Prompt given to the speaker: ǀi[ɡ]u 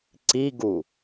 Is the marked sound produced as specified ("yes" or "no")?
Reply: yes